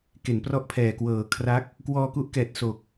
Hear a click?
no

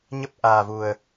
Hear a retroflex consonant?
no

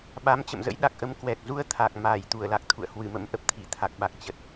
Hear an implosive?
yes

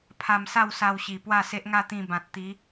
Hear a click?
no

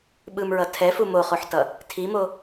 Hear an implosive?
yes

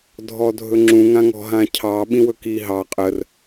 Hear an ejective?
yes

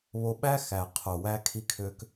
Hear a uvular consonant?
yes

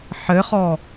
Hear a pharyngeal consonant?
yes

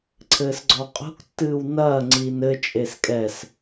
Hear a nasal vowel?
no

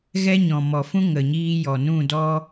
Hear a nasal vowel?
yes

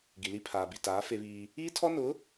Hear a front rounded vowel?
no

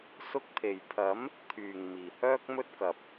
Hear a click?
no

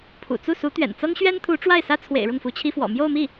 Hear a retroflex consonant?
yes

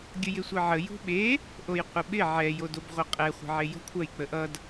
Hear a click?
no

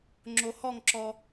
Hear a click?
yes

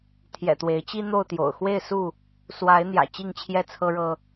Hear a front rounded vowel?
no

